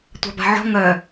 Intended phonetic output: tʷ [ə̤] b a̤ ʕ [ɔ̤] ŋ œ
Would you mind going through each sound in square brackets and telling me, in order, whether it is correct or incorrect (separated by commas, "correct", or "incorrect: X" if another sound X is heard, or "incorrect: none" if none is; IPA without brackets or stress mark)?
incorrect: a̤, correct